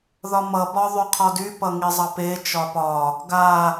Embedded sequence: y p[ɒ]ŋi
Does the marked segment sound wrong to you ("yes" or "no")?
yes